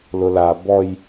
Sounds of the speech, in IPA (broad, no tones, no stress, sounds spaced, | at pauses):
l ʊ l a b ɔ j